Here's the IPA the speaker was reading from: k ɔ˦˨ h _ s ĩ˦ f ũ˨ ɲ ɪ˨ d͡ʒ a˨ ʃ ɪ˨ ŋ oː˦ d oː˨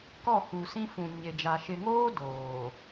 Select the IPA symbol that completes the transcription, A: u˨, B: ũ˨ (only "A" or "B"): A